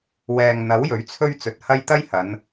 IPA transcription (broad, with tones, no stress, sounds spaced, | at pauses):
w ɛː˨ ŋ n̪ ɐ˨˥ w j ɵ˨˥ ɥ t͡sʰ ɵ˥ ɥ t͡s ɵ˨ t̚ h ɐ˥ j t̪ ɐ˥ j h ɐ˨˧ n